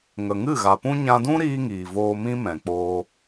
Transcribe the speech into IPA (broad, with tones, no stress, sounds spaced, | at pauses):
ŋ ə˨ ŋ ɨ˦˨ ɣ a˨ p ũ˦ ɲ ã˧ d ũ˦ ɾ iː˦ ŋ iː˨ v oː˧ m ĩ˦ m ɛ̃˨ k͡p oː˦